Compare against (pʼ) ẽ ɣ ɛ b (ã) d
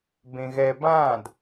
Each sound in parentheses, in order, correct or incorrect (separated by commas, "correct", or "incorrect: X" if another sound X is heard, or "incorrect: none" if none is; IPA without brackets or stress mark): incorrect: b, correct